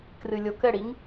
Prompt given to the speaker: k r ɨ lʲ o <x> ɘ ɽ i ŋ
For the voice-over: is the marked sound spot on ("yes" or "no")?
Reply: no